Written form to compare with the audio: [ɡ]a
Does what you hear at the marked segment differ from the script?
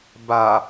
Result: yes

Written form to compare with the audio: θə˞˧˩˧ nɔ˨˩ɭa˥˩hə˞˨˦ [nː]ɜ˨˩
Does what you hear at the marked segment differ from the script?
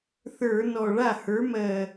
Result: yes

